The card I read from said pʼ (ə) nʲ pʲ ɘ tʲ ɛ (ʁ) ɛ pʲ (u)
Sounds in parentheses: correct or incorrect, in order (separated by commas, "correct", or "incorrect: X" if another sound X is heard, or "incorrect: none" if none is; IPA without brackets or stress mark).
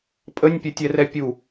correct, incorrect: r, correct